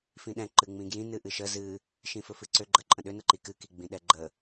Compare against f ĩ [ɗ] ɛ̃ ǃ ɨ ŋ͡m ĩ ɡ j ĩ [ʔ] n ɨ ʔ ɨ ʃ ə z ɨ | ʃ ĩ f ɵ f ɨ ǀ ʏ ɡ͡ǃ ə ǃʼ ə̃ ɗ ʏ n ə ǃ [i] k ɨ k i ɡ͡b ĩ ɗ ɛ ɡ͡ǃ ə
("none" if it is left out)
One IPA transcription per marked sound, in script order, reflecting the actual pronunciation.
ɗ, none, i

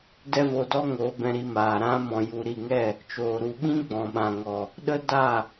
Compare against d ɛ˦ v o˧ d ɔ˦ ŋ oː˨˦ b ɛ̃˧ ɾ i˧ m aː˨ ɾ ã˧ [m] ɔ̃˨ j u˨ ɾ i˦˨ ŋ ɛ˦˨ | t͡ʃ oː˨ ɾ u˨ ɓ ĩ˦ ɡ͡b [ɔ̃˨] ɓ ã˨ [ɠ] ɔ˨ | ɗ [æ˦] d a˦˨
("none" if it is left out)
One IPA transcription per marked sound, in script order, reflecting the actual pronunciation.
m, ɔ̃˨, ŋ, ə˦

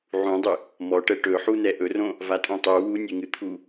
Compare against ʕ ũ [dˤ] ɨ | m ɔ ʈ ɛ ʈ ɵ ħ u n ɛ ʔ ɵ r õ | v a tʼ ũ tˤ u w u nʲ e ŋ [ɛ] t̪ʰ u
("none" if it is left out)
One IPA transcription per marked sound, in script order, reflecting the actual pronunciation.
dˤ, ɨ

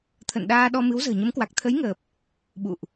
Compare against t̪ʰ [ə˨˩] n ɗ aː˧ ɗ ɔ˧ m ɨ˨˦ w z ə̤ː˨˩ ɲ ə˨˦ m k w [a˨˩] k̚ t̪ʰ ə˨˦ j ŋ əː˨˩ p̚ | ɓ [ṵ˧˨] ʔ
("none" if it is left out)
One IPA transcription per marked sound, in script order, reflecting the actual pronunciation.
ə̰˧˨, a˨˩, ṵ˧˨

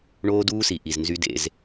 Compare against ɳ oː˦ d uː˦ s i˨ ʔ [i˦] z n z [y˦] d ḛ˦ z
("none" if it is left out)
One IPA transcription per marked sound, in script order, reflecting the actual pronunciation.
i˨, y˦

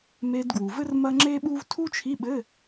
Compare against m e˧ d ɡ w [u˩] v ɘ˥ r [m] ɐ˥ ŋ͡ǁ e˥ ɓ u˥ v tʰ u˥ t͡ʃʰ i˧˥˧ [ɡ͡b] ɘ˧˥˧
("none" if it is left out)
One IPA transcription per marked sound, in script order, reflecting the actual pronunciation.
u˩, m, ɓ

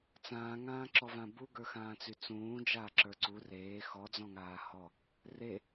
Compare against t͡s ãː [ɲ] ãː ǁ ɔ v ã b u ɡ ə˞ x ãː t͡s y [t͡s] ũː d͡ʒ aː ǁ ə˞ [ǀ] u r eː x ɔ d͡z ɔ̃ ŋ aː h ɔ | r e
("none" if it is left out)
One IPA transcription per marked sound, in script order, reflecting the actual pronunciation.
ŋ, t͡s, ǀ

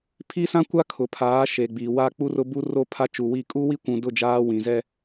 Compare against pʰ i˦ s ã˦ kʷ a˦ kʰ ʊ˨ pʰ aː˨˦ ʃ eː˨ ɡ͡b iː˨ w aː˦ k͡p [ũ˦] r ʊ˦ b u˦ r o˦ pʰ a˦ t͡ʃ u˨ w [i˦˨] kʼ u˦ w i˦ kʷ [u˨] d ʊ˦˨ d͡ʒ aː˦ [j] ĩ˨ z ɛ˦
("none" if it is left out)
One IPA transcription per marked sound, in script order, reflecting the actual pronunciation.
u˦, i˦˨, ũ˨, w

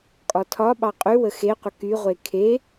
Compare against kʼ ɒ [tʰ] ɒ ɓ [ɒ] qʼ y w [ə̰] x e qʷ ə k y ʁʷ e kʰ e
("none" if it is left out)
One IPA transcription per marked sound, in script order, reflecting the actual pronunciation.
tʰ, ɑ, ə

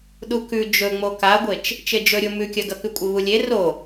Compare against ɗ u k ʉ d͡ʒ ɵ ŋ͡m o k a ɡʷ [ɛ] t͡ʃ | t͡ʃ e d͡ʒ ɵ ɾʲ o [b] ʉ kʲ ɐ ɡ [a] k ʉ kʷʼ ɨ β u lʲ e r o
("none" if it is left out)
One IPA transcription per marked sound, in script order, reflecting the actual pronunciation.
e, m, ɐ

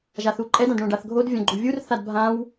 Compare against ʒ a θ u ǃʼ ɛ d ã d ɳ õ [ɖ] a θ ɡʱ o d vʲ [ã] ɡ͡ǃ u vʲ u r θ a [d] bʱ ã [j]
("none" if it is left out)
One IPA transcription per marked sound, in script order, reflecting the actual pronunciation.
ɖ, ã, d, w

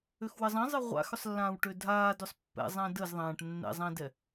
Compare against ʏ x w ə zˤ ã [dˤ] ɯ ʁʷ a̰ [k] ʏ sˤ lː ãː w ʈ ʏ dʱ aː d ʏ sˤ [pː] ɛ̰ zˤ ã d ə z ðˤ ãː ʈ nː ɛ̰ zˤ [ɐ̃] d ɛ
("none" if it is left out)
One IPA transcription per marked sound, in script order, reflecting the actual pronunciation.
zˤ, x, pː, ã

